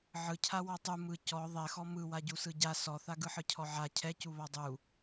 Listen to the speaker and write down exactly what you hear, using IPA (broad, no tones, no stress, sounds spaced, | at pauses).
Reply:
ʕ ɯ cʰ a w ɔ tˤ u m ɯ c ɔ ðˤ ɛ x ɔ m ɯ w a ɟ u s ɯ ɟ a s ɔ θ a ɡ ɯ ħ ɯ cʰ ɔ ʕ a cʰ ɛ c u β a dˤ u